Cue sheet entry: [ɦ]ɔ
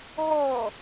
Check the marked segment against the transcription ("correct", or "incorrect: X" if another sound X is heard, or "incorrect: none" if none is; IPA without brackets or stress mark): correct